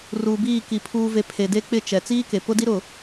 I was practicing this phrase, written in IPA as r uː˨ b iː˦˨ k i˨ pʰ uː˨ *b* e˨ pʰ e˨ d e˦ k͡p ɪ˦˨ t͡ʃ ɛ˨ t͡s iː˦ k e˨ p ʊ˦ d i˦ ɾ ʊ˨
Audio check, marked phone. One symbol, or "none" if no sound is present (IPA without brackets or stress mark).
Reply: v